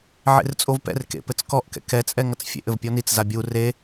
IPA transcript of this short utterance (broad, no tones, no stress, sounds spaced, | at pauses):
ʕ ḛ r t͡sʼ o v p ɛ̰ r k ḛ p ɘ t͡s k ɔ ʔ k ɛ̰ k ɛ t͡sʼ ɛ ŋ ɐ t͡s fʲ ḛ ʔ ɘ v pʲ ɔ n i t͡s z a bʲ u r e